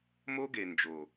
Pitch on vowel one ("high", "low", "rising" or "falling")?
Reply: high